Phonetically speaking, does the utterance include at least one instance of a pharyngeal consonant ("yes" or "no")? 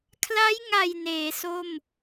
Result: no